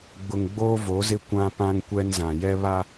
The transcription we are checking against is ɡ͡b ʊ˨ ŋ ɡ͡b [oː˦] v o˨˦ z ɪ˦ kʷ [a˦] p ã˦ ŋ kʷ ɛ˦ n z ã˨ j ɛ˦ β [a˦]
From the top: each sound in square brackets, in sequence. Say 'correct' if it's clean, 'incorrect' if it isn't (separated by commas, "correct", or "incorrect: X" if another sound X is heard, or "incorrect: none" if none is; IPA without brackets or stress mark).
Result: correct, incorrect: ã˦, correct